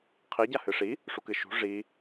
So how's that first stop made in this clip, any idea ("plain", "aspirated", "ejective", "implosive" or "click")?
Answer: aspirated